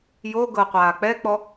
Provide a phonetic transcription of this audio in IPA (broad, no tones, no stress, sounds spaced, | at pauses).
j o ɡ ɤ qʷ aː k͡p ɛ k͡p ɔ